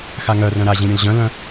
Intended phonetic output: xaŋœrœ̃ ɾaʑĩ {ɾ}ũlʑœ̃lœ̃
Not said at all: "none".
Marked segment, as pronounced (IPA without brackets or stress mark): ɾʲ